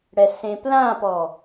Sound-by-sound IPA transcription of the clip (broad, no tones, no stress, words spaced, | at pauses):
ɽɛsẽplãpɔ